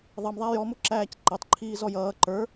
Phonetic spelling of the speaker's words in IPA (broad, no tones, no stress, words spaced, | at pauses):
ðˤʌmðˤæ jɔmʊǁæːc ǃɛtˤǃʰiː zɔjʌː ǃə˞